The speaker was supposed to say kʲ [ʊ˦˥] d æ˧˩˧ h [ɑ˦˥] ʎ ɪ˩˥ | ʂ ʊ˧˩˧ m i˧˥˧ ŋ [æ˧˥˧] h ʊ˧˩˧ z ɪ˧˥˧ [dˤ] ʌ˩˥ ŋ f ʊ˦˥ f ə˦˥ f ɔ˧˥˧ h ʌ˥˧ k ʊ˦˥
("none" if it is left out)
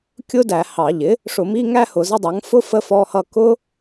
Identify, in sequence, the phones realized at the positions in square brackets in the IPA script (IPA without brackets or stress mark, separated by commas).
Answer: ʊ˦˥, ɑ˧˩˧, æ˥˧, dˤ